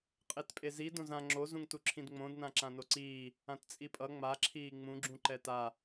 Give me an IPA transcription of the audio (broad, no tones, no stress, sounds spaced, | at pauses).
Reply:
qʼ e t pʼ e z i d õ z ã ŋ͡ǁ o z ũ ŋ t u ǁʰ ĩ d ŋ͡m õ d n ã ǁ ã n o ǀ iː | ã t t͡sʼ i pʼ ʌ ŋ͡m a ǁʰ iː ŋ͡m ũ ɡ͡ǁ ũ ǃ ɛ t a